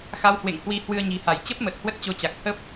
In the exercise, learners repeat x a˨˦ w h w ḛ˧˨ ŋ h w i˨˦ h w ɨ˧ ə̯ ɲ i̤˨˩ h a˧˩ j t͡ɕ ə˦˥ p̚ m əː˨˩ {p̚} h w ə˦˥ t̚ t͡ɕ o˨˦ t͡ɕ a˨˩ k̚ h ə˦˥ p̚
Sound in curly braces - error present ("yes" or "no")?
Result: yes